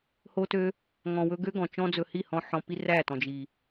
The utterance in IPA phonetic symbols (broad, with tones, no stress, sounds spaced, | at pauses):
h o˧ t ø˧ | ŋ ɔ̃˨ w ɵ˧ ɡ ø˦ ɡ ɔ̃˨ t͡ʃ ɔ̃˦ d͡z ɵ˧ h i˦˨ h ɔ̃˧ ħ ɔ̃˨ p i˧ r æ˦˨ t ɔ̃˨ d͡ʒ i˨